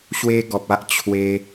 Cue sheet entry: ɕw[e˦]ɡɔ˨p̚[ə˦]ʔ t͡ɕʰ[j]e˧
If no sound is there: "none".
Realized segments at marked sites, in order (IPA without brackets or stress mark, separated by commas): e˦, a˦, w